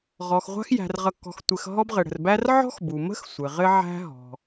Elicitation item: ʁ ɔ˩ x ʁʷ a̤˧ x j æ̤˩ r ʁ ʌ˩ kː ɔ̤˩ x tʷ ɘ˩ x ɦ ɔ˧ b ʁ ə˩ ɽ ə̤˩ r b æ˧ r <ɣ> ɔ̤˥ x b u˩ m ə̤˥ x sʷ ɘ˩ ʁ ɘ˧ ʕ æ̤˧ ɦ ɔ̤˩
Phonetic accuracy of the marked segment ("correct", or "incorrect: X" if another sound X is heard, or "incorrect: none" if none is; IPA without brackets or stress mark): incorrect: ʕ